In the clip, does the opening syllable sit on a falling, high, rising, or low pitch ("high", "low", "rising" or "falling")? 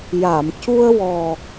low